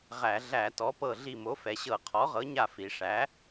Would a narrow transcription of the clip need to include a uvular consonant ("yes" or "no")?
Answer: yes